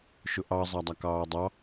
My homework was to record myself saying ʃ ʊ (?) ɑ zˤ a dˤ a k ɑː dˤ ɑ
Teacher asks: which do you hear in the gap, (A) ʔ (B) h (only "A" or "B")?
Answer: A